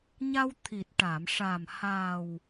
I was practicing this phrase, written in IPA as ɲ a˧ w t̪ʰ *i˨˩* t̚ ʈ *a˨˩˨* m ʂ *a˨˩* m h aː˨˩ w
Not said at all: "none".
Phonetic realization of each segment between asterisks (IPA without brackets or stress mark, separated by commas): i˨˩, a˨˩˨, a˨˩